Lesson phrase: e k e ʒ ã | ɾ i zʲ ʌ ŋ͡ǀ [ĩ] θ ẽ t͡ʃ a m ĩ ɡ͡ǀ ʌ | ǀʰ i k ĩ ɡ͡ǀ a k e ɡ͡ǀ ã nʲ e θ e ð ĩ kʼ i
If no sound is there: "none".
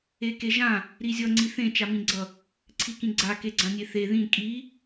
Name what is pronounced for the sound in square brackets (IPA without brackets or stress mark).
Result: i